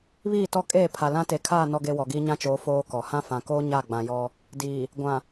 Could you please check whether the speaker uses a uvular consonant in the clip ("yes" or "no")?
no